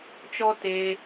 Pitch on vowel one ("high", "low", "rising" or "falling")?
high